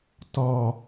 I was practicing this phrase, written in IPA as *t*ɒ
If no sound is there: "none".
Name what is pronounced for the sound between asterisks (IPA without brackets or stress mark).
t